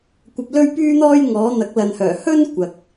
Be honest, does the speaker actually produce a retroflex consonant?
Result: no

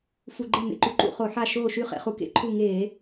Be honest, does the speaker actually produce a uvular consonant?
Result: yes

